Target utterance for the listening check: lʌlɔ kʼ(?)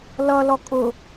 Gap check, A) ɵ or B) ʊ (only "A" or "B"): B